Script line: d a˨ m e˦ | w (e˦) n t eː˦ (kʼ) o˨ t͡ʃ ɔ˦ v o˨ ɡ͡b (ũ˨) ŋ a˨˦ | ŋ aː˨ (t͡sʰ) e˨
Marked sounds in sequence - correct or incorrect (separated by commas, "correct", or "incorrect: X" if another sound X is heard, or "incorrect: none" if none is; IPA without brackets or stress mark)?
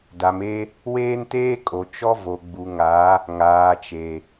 incorrect: eː˦, correct, incorrect: u˨, incorrect: t͡ʃ